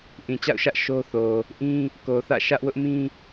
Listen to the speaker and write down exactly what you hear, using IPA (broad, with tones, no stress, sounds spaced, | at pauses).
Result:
ʔ ĩ˨ t͡ɕ a̰˦˨ ʊ̯ ʃ ä˦ ʔ ʃ o˦ θ o˨ | ʔ ĩ˦ | k o˨ θ ä̰˦˨ ʃ ä˦ ʔ w ʊ˦ ʔ m ĩ˦